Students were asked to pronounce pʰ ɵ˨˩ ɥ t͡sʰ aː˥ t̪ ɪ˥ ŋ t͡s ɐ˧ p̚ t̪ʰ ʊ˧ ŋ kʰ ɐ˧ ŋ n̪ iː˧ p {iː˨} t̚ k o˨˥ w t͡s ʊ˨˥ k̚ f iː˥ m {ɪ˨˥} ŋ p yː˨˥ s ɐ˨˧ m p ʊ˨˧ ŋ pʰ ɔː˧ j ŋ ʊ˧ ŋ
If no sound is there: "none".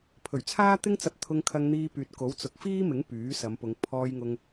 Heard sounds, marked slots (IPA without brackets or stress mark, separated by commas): yː˨, ɪ˨˥